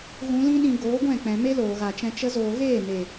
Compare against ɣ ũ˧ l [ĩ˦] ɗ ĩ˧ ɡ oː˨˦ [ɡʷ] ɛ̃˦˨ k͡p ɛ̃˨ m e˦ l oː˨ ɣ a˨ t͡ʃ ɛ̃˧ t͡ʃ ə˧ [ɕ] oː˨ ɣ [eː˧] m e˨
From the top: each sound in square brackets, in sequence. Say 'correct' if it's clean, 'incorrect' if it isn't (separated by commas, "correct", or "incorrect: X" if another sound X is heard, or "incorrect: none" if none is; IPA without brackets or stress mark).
correct, correct, incorrect: z, incorrect: eː˦˨